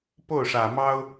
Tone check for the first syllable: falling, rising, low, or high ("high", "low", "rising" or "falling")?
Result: falling